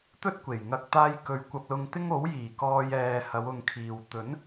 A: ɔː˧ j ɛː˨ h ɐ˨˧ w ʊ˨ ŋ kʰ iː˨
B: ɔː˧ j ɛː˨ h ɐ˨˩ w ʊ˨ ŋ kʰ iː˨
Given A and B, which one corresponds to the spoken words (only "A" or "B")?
A